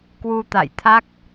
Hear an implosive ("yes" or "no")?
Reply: no